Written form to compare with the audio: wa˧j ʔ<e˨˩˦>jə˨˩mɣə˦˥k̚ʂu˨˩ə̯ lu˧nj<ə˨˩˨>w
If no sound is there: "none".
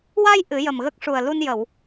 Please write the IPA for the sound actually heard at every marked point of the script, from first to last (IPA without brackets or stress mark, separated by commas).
ɨ˨˩˦, ə˨˩˨